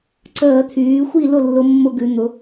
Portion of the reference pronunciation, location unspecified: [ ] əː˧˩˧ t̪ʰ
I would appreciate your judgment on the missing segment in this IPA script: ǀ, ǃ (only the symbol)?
ǀ